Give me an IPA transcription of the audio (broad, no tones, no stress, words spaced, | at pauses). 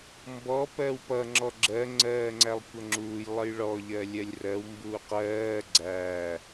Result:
mbɔ pɜwpʌ ŋ͡ǁɔɡ͡ǁɜ ŋ͡ǀɜːŋ͡ǀælˠkʷʌŋ͡ǁuːj lˠəjɭɔ ʎɜlʲɜlʲrɜw mbuːqɜː ɡ͡ǀæ